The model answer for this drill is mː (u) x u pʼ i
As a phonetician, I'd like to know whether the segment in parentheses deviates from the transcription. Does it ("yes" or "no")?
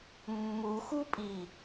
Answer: no